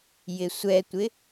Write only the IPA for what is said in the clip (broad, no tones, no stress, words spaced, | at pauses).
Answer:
jɪsʷɛtʷɪ